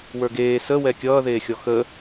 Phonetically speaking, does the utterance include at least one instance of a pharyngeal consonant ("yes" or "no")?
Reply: no